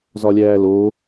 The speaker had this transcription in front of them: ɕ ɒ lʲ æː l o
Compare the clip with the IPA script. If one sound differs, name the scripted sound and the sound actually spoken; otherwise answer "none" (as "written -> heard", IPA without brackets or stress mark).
ɕ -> z